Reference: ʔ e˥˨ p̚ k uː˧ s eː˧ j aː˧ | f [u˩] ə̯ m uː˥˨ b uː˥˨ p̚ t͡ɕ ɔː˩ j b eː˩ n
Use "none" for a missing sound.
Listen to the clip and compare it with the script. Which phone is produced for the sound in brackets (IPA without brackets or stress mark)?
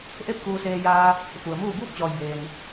u˩